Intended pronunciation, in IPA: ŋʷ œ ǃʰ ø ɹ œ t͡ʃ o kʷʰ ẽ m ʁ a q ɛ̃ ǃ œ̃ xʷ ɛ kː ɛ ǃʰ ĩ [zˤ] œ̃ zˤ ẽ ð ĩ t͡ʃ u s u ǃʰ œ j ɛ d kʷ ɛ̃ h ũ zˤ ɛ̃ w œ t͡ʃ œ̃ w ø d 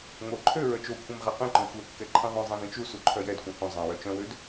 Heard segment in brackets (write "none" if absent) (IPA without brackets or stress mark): ðˤ